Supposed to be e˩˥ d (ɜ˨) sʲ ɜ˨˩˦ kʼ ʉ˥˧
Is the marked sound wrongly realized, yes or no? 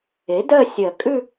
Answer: yes